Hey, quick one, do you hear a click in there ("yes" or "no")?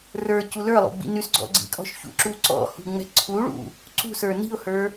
yes